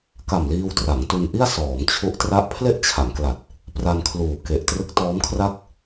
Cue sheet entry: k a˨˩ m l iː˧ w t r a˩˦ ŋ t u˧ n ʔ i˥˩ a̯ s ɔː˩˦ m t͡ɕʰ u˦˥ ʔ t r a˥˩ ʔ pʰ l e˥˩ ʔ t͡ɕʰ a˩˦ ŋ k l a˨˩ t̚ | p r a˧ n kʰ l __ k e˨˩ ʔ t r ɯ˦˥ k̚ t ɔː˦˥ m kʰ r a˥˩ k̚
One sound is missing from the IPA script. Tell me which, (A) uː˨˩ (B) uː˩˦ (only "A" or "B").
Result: A